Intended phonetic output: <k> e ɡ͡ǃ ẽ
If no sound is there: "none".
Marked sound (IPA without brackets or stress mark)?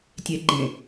tʲ